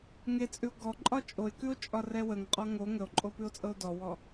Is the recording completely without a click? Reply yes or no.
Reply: no